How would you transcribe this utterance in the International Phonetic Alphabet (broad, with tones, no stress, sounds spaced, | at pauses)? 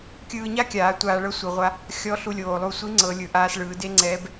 kʲ ɯː˧ ɲ a˥ kʲ aː˩˧ tʷ aː˧ ɭ ɤ˥ sʷ ɯ˩˧ ʁʷ a˧˥ | xʲ ɔ˧˥ ɬ u˧ lʲ oː˩ lˠ u˧ sʷ i˧˥ ŋ͡ǀ ɤ˩˧ lʲ ɯ˩ ʔ aː˧ s ɭ ɯː˩˧ d e˥ ŋ͡ǀ ɛː˧˥ b